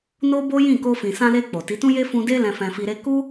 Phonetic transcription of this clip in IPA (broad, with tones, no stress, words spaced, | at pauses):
no˦bo˦jĩ˦˨ ko˧fĩ˨sã˧le˧ k͡po˨ti˨˦tũ˦ je˦fũ˧de˦ lɛ̃˧fɛ̃˧fi˧ɾe˦ ku˦